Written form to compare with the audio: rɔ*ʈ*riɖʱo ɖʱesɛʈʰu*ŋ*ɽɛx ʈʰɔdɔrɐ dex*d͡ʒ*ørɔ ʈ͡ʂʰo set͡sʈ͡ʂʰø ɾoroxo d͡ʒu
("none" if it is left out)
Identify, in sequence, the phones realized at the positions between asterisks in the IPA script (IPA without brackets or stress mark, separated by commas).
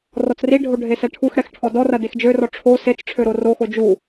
t͡s, x, d͡ʒ